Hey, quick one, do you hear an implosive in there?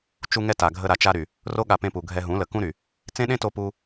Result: yes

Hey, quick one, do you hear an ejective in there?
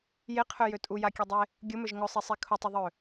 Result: yes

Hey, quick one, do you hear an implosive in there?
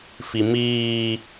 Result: no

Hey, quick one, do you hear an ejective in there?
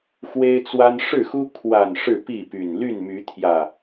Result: no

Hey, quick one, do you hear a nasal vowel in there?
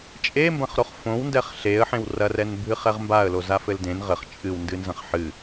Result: yes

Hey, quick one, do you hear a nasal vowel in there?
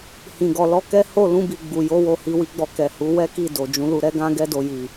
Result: yes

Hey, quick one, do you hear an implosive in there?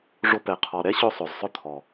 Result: no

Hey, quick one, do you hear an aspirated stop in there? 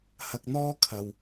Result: yes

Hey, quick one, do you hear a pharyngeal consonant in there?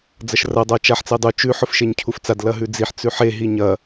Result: yes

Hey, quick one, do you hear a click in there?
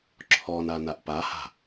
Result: yes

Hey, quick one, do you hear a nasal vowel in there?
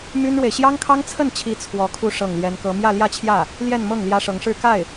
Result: no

